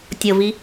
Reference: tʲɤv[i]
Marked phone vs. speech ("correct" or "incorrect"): correct